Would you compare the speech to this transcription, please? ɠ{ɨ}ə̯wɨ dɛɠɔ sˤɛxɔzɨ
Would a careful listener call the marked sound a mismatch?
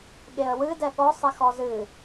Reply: yes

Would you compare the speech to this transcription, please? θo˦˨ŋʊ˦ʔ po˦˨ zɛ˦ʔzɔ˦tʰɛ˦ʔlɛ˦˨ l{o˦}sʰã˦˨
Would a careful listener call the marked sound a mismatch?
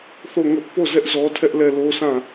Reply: no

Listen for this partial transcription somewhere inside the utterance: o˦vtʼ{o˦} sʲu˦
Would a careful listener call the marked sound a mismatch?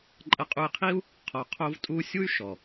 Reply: yes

